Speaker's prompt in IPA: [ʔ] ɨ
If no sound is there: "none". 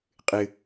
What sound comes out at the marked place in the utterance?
qʼ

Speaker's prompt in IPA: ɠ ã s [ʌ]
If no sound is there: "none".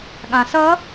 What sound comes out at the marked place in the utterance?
ʌ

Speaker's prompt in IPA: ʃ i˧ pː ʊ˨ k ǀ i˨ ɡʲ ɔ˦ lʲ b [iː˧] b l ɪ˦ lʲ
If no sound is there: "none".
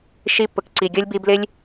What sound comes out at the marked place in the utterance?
i˧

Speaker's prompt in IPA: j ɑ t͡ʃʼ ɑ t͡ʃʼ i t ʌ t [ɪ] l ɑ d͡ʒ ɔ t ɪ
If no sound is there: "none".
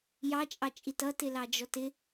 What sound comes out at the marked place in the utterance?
ɪ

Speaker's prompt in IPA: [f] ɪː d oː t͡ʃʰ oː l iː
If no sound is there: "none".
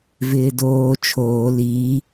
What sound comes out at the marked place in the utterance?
v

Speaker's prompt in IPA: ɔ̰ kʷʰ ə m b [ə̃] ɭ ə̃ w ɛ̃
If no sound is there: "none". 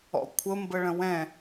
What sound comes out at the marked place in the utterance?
ə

